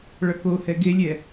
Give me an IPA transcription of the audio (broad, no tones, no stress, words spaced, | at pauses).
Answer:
ɭʌkohɛ ɡelʲɛ